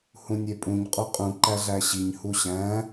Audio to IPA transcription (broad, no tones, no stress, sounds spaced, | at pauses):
h ũ nʲ e pʼ ũ ɲ qʼ o qʼ ũ ǃ æ ɮ æ ɕ i ɲ h u ɕ æ̃